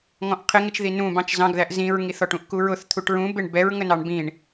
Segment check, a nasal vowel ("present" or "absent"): present